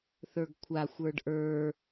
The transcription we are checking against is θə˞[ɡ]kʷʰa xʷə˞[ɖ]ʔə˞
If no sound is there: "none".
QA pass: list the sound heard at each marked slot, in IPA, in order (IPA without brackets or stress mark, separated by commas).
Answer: ɡ, ɖ